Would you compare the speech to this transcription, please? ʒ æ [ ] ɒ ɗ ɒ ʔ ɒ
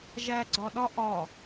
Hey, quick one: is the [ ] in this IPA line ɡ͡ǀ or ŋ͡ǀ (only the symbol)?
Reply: ɡ͡ǀ